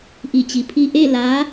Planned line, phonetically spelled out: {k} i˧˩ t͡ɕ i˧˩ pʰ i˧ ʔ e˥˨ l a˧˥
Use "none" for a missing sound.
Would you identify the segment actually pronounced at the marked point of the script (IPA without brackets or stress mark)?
ʔ